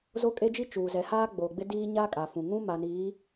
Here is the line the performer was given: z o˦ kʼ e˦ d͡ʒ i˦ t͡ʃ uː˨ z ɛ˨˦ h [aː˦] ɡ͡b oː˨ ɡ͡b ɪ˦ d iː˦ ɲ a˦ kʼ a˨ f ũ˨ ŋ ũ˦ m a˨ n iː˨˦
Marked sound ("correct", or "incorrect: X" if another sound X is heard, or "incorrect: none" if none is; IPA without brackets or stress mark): correct